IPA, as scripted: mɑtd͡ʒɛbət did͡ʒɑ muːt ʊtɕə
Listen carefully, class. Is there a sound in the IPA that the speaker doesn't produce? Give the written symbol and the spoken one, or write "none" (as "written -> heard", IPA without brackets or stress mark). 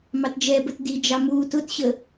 none